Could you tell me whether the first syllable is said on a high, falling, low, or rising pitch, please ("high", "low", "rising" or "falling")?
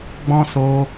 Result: high